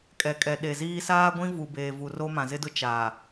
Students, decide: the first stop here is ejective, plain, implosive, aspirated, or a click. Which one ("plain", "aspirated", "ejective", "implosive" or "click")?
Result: ejective